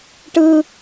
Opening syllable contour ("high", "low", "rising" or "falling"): high